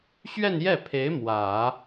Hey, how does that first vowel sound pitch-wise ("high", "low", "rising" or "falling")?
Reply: falling